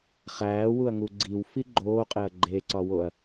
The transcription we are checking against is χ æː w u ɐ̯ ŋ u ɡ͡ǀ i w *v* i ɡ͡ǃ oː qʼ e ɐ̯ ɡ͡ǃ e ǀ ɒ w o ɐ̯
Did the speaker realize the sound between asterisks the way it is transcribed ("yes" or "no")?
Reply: no